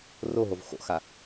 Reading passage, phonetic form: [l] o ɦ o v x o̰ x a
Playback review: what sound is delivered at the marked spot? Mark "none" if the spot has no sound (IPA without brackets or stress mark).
r